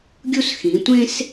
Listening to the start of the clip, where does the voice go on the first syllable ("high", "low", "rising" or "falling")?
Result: high